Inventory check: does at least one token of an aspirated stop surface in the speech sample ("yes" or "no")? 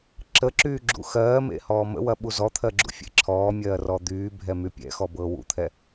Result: yes